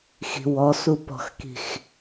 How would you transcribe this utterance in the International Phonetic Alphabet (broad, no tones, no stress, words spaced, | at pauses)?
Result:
xi̤wɔ supɔ̤xki̤x